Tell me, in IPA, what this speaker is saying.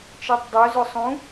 t͡ʃ ɜ tˤ dˤ o z ʊ sˤ ũ

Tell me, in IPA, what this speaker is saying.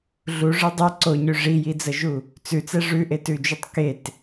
ɮ u ʐ ɯ dˤ ɛ ǀ o ɲ ʉ ʐ i j i d͡z ə ʒ u | t͡s ʉ t͡s ɛ ʐ ʉ ʔ e t ʉ d͡ʒ u tˤ k e t

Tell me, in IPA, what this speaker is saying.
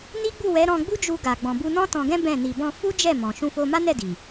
n i˦ ɡ͡b u˦˨ w ɛ˨˦ ɾ ɔ̃˧ ɡ͡b u˦ d͡ʒ u˧ ɡ a˨ ɡ͡b ɔ̃˨ b u˧ n ɔ̃˦ t ɔ̃˧ ɡ ɛ̃˦ b ɛ̃˦˨ n i˧ b ɔ̃˧ f u˦ d͡ʒ ɛ˦˨ m ɔ̃˨ ʃ ũ˧ f o˧ m a˦ n ɛ˦˨ d i˨

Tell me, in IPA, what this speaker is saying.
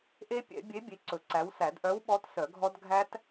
ʔ e˦˥ pʲ ɛ̰˨˩˦ bʲ e˨˥ bʲ e˨˥ ǀ ɵ˨˩˦ ǀ æ˨˥ w s æ˨˩˦ d ʔ œ˨˥ w ɓ ɔ˨˥ t s œ˨˩˦ ɡʱ ɔ˦˥ d ɡʱ æ˦˥ t

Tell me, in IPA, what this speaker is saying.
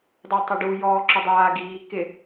dˤ o tˤ ʊ ɖ u j ɔː ǁ ʊ dˤ aː ɡ iː k ɪ

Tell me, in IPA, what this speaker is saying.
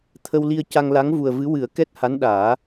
t̪ʰ ə˧ w l i˧ ə̯ c a˧ ŋ l a˧˥ ŋ v u˨˩ ə̯ v ɨ˧˥ w ɨ˨˩˦ ə̯ k ɛ˦˥ t̚ h a˧˥ n ɗ aː˨˩˦

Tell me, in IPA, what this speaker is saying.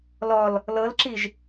l ɔ l | l ɤ l ǁ i ʒ

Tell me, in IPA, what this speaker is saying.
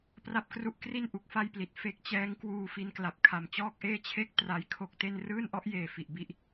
p r a˦˥ p̚ k r u˦˥ ʔ k r i˥˩ n ʔ u˨˩ k̚ f a˥˩ j p l i˨˩ t̚ f e˦˥ k̚ t͡ɕ ɛː˦˥ ŋ k w uː˧ f i˧ n k l a˨˩ p̚ kʰ a˨˩ m t͡ɕ ɔː˥˩ k̚ ʔ eː˥˩ t͡ɕʰ e˥˩ k̚ t r a˦˥ j kʰ o˦˥ k̚ t e˥˩ n r ɯː˥˩ n ʔ ɔ˦˥ ʔ j eː˨˩ f i˨˩ ʔ b i˥˩ ʔ

